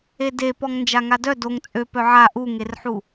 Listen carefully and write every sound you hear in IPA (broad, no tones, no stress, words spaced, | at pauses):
ede pɔŋnd͡ʒaŋadœ doŋ t͡sʼø pœʕa ʔuŋerħu